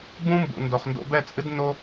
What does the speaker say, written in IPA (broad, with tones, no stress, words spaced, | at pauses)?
bũ˦mbṵ˨ ndo˨χndo̰˧ bɛ˦˨t͡sʼɨ˦dno˦